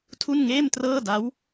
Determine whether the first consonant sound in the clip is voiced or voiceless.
voiceless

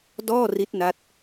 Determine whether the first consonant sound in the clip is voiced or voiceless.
voiced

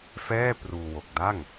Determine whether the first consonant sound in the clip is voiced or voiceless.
voiceless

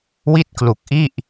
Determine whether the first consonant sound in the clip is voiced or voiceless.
voiced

